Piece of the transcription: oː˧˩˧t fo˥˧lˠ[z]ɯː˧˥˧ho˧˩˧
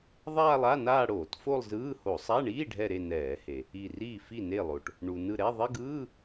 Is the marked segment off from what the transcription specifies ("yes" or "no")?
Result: no